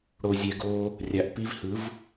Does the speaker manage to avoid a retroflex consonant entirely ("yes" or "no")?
no